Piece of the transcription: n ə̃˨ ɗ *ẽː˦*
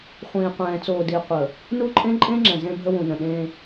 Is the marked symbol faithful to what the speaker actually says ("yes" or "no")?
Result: yes